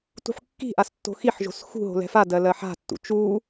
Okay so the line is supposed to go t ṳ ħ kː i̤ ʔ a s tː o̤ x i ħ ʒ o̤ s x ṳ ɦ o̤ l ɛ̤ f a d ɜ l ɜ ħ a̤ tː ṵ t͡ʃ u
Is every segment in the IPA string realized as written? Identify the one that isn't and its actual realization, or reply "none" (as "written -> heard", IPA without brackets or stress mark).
none